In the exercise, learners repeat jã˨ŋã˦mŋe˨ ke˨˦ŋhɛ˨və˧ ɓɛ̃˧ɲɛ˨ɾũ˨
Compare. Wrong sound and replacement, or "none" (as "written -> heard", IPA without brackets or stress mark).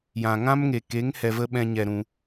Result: none